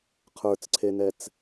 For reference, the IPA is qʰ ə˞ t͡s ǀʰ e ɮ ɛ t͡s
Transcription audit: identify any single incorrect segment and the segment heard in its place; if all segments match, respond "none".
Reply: ɮ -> n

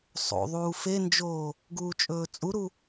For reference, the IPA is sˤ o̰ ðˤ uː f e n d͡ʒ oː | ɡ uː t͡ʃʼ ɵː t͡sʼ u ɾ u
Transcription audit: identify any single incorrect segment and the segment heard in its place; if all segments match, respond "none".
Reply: none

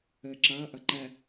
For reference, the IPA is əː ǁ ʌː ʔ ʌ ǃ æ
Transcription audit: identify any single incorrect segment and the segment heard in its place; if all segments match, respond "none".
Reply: none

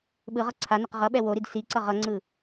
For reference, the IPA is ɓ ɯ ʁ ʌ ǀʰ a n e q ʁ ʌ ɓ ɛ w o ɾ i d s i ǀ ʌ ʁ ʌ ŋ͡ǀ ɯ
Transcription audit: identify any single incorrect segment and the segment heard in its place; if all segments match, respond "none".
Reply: none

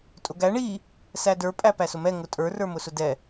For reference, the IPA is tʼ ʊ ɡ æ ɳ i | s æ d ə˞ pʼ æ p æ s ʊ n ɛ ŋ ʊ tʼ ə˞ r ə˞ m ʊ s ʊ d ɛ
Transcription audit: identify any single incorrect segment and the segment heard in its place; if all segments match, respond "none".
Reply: n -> m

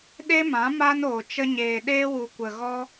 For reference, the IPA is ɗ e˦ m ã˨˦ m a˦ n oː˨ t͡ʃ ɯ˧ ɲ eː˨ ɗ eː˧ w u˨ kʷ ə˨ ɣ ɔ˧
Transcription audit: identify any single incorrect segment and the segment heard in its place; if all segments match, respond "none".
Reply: ɯ˧ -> ə˧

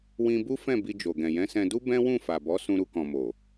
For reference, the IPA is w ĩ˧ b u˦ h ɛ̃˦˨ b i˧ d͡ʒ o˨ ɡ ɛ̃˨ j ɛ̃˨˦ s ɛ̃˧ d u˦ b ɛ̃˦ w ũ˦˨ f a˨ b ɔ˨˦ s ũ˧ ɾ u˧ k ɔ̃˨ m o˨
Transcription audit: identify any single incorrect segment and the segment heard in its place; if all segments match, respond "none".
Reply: h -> f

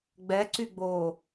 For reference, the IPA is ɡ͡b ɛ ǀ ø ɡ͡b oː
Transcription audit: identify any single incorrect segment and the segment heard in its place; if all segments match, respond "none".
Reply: ø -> y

